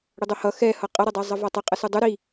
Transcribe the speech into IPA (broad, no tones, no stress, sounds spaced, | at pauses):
ɽ ə dˤ o h ʌ x ɛ h ʌ qʼ ʌ ɾ ʌ dˤ ɛ zˤ ʌ v ɔ tˤ ə qʼ ə s u dˤ u ɾ i